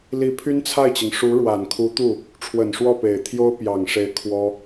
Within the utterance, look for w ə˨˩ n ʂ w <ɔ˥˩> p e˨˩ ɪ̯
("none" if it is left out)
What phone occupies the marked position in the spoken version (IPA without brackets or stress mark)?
ɔ˥˩